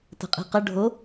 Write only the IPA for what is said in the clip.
t ə̤ qʼ i̤ q ə ɖʱ o

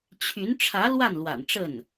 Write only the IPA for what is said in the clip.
t͡ɕʰ y˧˥ n ʈ͡ʂʰ ä˧˥ l w a˥˩ n l w a̰˨˩ n ʈ͡ʂ ə˥˩ n

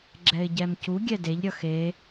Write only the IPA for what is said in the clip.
ɡ͡ǁ ɛ ɪ̯ ɟ ɛ m c u ɡʲ ɛ d e ʎ ɾʲ ʌ x e

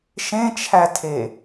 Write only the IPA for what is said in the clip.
ʃ ẽ t͡ʃʰ æ tʰ e

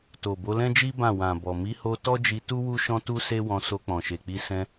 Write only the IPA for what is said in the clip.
t o˨ b o˨˦ l ɛ̃˦ d͡ʒ i˦ b ã˦˨ w ã˨ b ɔ˨ m i˨˦ h o˧ t ɔ˦ d͡ʒ i˧ t u˦ w u˦ ʃ ɔ̃˦ t u˦ s e˦ w ɔ̃˧ s o˧ k͡p ɔ̃˨ ʃ e˨ k͡p i˧ s ɛ̃˧

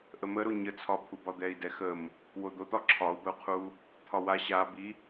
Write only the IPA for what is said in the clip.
ʔ ə m ə ɾ o ɲ ə t͡sʰ ɒ pʰ u b ɒ d̪ ɛ i̯ d ɛ x ə m | w o d̪ o t̪ ɒ ǁʰ ɒ u̯ b ə u̯ qʰ u | t̪ʰ ɒ w a ɕ a b i

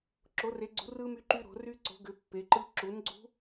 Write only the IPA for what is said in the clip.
ǁ o˨˥ r e˨˥ ɡ͡ǀ ṳ˨˥ r ɯ˦˥ m y˦˥ ǃ y˦˥ ɾ o̤˨˥ r y˦˥ ǀ o̤˨˥ ɡ ʏ˨˥ pː e˨˥ ǃ ɯ˦˥ ǁ u˨˥ n ɡ͡ǀ ṳ˦˥

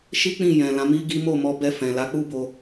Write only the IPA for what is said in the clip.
ʃ i˦ k͡p ĩ˦˨ j ɛ̃˨ l ã˨˦ m i˦ ɡ i˦ m o˦˨ m ɔ˧ b ɛ˧ f ɛ̃˨ l a˨˦ k͡p u˦ b o˧

